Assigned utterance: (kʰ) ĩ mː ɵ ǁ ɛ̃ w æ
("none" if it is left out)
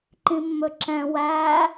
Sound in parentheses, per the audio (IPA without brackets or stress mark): ǃ